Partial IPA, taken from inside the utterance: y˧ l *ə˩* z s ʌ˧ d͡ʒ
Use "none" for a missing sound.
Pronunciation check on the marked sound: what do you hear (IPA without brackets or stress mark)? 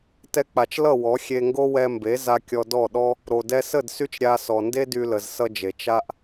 ə˩